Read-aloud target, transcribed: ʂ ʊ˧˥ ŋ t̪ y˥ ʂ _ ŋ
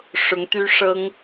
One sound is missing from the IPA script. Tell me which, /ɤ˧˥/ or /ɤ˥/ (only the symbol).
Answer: ɤ˥